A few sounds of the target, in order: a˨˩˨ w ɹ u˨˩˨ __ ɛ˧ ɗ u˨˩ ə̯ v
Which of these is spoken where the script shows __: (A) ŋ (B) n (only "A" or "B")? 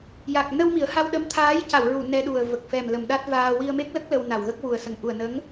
B